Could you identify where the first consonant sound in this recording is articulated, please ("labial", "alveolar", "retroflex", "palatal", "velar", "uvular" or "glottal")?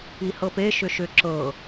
glottal